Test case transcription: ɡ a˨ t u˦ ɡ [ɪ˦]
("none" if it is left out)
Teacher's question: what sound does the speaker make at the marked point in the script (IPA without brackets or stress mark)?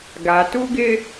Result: ɪ˦